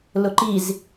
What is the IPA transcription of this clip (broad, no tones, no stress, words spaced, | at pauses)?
lʊǃiz